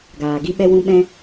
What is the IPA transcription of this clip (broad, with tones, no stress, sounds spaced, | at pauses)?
ɡ aː˨ ɡ i˧ ɓ ɛ˧ w ũ˧ ɓ ɛ̃˧